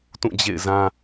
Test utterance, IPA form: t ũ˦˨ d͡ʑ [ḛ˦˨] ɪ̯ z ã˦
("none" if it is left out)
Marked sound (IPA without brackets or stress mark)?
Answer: ḛ˦˨